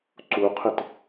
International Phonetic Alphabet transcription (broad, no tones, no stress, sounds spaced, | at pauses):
ǀ u qʰ ɪ t